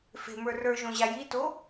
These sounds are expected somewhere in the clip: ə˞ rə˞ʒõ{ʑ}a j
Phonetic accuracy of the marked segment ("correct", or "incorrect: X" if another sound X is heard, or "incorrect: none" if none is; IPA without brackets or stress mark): correct